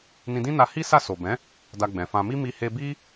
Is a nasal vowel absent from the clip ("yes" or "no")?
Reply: no